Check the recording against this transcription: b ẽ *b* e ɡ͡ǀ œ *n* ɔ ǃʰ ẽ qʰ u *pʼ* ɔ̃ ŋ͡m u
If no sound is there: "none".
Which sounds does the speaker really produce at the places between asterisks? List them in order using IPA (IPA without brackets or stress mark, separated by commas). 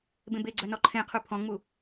b, n, pʰ